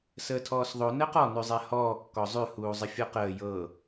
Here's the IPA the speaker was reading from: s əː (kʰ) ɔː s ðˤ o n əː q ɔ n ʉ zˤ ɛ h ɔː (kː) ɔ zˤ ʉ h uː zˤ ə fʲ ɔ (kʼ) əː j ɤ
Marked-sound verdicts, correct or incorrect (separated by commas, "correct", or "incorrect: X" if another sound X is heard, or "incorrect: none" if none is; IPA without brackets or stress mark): incorrect: tʰ, correct, incorrect: q